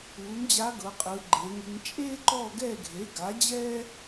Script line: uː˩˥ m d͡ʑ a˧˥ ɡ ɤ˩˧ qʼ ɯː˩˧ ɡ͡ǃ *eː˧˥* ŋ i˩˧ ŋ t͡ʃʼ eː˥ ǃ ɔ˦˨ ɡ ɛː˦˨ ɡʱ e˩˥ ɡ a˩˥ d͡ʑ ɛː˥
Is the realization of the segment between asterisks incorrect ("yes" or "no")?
yes